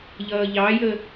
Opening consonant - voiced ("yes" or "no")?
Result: yes